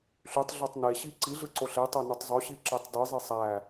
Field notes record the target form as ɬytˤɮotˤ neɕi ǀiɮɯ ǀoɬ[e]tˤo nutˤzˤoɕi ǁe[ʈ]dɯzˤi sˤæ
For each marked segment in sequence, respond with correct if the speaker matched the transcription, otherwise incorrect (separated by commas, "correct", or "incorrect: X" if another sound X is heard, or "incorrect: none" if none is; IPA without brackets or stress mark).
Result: correct, incorrect: tˤ